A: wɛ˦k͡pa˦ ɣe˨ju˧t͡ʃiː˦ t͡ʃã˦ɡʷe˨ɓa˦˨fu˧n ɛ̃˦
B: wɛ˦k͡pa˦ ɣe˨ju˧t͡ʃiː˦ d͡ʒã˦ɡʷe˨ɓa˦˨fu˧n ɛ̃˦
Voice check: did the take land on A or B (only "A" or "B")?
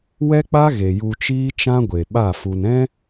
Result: A